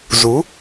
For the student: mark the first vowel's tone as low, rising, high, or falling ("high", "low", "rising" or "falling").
rising